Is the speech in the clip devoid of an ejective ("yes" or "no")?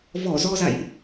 yes